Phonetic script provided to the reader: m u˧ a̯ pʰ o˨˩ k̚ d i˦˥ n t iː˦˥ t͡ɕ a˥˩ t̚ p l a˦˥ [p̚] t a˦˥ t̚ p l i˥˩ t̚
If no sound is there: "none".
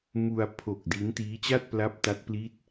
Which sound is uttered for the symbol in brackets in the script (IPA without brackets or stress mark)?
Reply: p̚